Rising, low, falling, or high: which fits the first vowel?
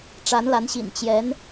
rising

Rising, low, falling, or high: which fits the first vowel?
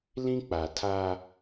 high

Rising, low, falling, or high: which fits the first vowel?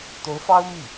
rising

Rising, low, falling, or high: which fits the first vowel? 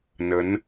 rising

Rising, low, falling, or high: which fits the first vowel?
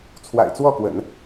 low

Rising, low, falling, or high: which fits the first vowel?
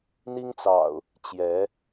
high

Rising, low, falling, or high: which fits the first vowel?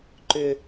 low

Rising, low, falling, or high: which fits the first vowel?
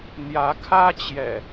rising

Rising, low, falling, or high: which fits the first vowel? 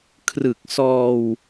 low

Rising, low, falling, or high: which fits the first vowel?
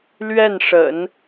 falling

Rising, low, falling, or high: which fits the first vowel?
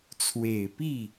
low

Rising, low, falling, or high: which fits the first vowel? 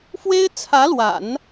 high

